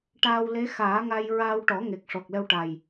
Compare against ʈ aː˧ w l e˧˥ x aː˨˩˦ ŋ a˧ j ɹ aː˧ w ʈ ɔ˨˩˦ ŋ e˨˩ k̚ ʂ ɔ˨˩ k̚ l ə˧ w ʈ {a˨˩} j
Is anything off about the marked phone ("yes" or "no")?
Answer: no